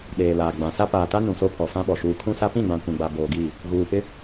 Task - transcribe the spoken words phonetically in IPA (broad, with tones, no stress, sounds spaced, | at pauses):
ɗ eː˨ l aː˨ ɡ͡b ã˨ s a˦ p aː˨ t a˦ n ũ˨ s o˦ pʰ ɔ˨ f ã˦ ɓ ɔ˨ ʃ uː˨ kʰ ũ˦ s a˦ p ĩ˦˨ ɡ͡b ã˨ kʷ ĩ˨ ɡ͡b a˨ b oː˨ ɡ iː˦˨ | ɣ uː˨ p ɪ˦